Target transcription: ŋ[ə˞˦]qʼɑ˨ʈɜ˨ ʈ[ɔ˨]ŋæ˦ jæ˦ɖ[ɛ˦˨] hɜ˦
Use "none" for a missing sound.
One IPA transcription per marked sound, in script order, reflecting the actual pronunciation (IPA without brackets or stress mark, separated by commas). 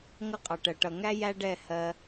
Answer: ʌ˦, ʌ˨, ɛ˦˨